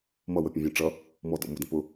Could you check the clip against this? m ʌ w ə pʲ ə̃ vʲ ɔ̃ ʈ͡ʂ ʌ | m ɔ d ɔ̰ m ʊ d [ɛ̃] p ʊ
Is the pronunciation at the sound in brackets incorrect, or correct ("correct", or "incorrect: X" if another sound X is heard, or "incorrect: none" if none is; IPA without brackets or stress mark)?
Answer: incorrect: ə̃